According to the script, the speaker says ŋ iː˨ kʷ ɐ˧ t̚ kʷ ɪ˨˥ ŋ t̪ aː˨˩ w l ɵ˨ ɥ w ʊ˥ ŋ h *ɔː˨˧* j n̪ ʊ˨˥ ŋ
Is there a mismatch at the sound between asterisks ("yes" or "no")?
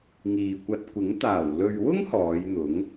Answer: no